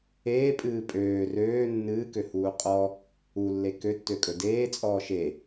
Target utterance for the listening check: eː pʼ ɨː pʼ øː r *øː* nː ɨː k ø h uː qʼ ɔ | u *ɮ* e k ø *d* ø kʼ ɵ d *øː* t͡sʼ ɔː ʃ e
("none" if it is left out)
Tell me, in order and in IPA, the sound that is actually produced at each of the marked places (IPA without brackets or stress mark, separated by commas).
øː, lː, tː, eː